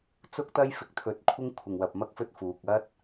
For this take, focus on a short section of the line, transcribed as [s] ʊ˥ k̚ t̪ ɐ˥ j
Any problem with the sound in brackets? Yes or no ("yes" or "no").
yes